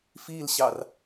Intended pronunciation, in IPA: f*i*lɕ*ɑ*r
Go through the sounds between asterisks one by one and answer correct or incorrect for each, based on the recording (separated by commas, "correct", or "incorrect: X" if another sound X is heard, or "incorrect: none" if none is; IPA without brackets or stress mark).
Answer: correct, correct